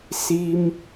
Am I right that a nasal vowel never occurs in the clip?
yes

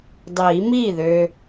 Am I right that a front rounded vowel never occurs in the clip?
no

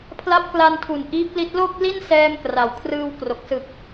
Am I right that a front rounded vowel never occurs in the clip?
yes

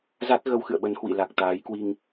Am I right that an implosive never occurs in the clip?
no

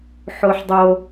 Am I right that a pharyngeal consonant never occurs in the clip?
no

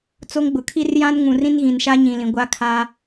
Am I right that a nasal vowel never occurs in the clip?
no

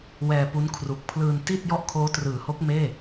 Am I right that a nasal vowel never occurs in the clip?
yes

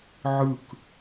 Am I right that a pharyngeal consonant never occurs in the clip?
no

